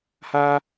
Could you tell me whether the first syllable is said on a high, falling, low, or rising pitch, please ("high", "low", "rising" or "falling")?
high